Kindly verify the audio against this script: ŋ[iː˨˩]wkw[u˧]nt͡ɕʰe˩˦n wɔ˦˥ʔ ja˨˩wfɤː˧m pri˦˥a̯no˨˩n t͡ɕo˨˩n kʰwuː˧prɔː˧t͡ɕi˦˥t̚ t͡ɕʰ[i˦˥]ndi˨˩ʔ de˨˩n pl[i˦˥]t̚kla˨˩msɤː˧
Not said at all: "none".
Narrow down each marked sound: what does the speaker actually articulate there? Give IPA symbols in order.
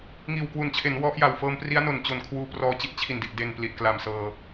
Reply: iː˨˩, u˨˩, i˨˩, i˨˩

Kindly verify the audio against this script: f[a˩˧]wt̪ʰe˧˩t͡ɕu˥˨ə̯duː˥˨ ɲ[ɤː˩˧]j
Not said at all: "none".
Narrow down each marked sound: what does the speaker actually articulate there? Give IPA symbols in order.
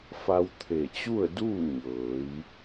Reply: a˧, ɤː˩˧

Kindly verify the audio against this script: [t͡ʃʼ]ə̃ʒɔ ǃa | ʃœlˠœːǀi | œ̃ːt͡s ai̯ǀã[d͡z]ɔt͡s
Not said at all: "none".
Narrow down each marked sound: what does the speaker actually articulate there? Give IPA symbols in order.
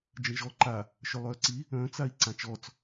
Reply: d͡ʒ, t͡ʃ

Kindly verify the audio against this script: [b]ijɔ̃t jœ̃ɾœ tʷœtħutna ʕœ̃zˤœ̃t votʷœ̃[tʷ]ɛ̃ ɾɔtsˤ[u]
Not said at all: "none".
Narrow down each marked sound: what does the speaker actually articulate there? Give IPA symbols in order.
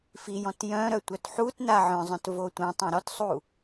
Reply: f, tˤ, u

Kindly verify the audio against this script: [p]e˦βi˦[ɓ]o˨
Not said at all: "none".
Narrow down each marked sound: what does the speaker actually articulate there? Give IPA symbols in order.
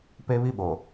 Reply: p, ɓ

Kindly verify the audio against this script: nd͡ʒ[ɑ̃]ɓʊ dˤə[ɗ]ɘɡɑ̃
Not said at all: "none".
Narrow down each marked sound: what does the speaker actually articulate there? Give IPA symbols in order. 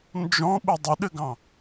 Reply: ɔ̃, ɗ

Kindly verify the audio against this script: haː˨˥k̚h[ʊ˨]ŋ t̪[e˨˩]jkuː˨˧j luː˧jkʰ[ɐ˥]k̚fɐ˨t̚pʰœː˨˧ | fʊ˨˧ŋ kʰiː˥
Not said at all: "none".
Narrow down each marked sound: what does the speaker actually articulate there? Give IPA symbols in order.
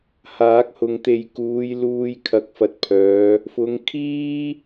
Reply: ʊ˨, e˨, ɐ˨˥

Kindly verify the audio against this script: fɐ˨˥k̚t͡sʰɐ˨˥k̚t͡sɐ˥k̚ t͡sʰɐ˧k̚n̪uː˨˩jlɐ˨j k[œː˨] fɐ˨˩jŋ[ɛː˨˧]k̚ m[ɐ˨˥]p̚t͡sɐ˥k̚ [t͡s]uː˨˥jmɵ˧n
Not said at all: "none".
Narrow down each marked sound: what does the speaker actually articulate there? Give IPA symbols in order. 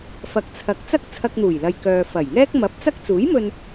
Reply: œː˨, ɛː˥, ɐ˨˥, t͡s

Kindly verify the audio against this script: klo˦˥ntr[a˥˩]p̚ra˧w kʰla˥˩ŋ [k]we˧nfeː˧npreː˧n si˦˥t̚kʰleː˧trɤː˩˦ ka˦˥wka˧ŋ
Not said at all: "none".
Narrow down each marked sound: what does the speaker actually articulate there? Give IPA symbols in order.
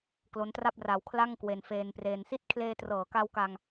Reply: a˥˩, k

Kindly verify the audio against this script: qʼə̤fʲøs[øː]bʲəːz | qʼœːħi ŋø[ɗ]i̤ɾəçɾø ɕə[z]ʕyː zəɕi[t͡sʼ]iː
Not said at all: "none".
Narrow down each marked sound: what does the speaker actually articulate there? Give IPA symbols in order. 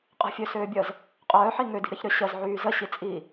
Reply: øː, d, z, t͡sʼ

